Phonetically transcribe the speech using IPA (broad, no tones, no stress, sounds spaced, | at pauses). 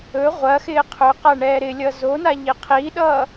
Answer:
ɵ ʁʷ ɐ x ɪː qʰ ɵ q a ɳ ɛː ɾ ɪ lʲ ʌ z o n a ʎ i qʰ i ɗ ʌː